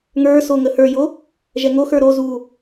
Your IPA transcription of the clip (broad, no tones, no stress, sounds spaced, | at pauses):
ŋ ə˞ s o ŋ ə h ə˞ j o | ʒ ɛ ŋ o x ə˞ ɾ o z u